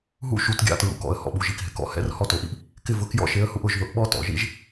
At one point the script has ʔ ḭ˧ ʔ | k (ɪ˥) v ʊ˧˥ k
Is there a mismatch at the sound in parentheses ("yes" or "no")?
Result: no